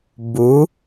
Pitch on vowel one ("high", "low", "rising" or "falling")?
rising